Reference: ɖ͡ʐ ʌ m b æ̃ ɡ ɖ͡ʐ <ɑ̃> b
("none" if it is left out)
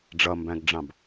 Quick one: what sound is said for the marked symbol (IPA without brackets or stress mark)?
ɑ̃